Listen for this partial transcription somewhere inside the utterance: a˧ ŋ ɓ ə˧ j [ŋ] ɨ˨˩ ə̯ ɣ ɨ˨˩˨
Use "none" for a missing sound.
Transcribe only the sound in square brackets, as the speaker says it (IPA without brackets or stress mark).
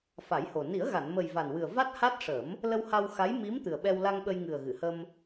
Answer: ŋ